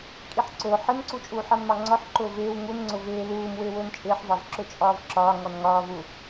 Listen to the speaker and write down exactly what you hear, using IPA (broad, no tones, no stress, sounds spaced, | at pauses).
kʼ i ħ ǀ ʊː ħ ɪ n ǀ u t͡ʃʼ uː ħ ɑ n m ɑ ŋ͡ǀ ɔ ħ ǃ ʊː v ɪː w ŋ u n ŋ͡ǀ ʊ v ɪː l uː m w ɪː w ʊː n t͡ʃʼ ɪː ħ v ɑ v ǁ ʊ t͡ʃʼ ɒː v ǁ ɒː ŋ ɔ n ŋ ɒː v u